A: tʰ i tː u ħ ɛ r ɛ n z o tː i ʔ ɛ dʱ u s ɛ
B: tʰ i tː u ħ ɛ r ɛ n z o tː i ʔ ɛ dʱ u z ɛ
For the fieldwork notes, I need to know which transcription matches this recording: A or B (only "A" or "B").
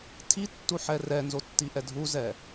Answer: B